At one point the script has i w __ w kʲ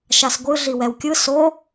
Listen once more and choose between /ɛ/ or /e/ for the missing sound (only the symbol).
ɛ